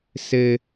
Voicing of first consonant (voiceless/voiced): voiceless